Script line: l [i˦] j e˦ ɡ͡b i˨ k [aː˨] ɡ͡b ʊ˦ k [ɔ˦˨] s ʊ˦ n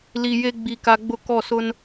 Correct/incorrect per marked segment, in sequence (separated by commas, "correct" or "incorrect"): incorrect, incorrect, correct